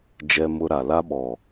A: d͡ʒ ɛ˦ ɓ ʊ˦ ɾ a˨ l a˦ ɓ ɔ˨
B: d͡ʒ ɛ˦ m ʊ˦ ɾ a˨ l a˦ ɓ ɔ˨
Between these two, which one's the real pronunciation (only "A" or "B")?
B